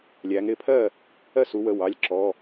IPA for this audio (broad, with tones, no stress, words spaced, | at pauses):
lʲæ˩˧ŋɾɪ˩˧˩pʰɜ˥˩ | ɜ˥˩su˩˧wə˩˧˩ wɑ˩˧˩lʲǁɔ˩˧˩